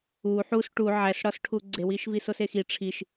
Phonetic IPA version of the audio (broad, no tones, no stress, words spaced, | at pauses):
u ħus ʈu ʕæsɽɒsʈʰu ɡ͡ǀewiʃvisos exi ʈ͡ʂʰiʃ